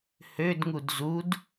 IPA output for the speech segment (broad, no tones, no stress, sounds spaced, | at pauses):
h ø d ŋ u d z u d